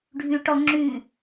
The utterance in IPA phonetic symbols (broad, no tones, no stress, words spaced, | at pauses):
ɖʱy ʈɔ ŋ͡ǁy